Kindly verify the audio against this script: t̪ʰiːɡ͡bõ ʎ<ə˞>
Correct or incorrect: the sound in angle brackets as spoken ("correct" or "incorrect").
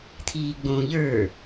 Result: correct